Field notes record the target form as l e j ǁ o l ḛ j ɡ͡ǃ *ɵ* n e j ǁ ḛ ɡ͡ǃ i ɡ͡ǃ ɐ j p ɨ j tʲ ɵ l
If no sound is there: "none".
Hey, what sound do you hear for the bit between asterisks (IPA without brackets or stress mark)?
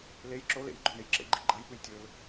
ɵ